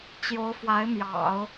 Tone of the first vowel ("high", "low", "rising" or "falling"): rising